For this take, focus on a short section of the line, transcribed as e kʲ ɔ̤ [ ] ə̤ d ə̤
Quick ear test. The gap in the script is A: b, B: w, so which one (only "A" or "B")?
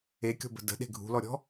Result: A